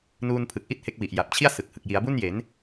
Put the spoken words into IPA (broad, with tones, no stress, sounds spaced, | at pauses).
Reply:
n uː˧ n pʰ ɯ˨˩ k̚ ʔ i˥˩ t̚ h e˦˥ k̚ w i˨˩ ʔ j a˨˩ p̚ t͡ɕʰ i˥˩ a̯ s ɯ˨˩ k̚ h ɯ˨˩ k̚ j i˩˦ a̯ b u˥˩ n j e˩˦ n